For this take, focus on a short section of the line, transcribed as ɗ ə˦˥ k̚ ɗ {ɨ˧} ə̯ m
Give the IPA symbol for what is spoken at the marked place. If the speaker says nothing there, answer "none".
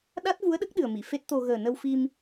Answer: ɨ˨˩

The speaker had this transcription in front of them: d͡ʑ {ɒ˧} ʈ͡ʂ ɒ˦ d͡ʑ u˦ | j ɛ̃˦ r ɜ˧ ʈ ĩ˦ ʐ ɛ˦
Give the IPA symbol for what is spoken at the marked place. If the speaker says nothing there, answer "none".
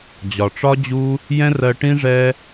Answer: ɒ˨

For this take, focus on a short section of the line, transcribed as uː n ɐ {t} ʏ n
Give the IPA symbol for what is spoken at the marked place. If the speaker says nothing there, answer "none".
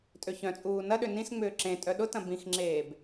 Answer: ɗ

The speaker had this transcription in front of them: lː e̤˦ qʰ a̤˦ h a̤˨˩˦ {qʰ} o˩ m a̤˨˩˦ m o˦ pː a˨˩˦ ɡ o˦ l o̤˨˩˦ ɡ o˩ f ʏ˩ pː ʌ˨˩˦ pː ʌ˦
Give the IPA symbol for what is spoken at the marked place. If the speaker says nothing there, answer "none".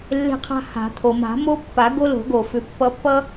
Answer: t̪ʰ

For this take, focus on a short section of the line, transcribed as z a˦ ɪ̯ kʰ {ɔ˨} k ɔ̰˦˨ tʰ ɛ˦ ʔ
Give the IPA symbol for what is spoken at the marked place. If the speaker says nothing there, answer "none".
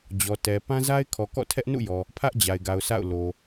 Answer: ɔ˨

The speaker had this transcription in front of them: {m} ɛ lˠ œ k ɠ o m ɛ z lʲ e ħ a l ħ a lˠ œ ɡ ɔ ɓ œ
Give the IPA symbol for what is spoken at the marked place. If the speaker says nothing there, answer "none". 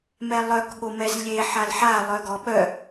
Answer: m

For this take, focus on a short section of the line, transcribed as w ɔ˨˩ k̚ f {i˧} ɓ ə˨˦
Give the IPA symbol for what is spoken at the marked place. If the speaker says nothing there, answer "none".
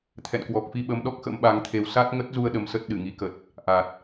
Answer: i˧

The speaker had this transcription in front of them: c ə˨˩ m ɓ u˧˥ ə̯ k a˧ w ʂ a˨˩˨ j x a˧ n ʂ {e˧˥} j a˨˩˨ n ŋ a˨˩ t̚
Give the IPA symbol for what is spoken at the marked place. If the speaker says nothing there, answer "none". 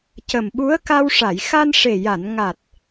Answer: e˨˩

